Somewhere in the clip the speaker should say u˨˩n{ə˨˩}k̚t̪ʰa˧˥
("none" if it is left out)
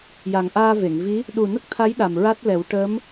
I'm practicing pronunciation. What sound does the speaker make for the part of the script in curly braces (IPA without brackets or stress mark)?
ə˦˥